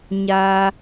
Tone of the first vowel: high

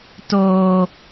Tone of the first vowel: low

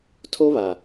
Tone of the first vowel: high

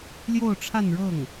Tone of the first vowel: falling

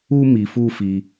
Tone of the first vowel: high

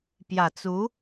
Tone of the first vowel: low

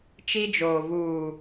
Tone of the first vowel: high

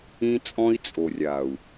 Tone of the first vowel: high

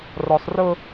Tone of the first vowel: low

